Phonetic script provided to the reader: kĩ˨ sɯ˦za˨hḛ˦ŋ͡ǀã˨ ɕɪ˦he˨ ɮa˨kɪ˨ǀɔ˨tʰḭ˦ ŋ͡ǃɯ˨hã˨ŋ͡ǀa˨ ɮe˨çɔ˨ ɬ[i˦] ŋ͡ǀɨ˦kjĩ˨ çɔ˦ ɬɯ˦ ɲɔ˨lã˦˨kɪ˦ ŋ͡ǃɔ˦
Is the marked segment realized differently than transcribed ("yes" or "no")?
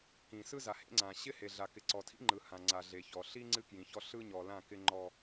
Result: no